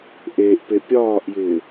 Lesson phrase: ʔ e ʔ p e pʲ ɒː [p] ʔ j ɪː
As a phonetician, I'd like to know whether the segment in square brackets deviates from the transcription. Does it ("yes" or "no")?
yes